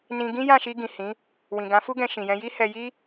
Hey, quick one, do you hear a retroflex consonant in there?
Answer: no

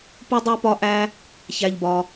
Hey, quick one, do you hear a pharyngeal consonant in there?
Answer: no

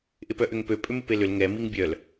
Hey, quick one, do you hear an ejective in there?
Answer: yes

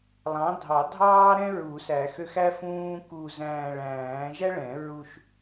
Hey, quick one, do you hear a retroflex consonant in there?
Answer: yes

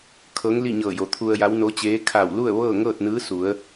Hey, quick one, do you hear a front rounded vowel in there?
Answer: no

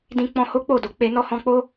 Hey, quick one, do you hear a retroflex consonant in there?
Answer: no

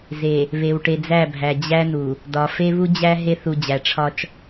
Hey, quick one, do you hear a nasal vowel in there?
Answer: no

